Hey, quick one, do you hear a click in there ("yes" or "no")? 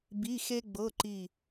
yes